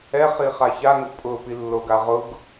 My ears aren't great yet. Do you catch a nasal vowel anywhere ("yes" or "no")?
no